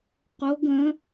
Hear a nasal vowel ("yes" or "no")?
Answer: yes